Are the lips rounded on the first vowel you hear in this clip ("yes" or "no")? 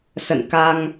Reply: no